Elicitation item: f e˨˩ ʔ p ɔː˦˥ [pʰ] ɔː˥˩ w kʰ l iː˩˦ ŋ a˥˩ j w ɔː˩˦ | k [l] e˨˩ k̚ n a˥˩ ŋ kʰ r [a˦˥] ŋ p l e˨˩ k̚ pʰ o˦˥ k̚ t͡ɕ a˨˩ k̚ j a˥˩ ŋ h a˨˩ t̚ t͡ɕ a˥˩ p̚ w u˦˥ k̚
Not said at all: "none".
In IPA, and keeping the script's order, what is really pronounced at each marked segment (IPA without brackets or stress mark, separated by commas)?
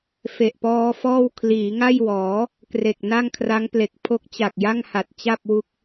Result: f, r, a˦˥